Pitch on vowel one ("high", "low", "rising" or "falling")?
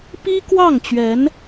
high